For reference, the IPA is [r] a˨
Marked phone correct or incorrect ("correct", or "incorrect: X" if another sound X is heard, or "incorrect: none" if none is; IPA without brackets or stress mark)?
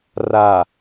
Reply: correct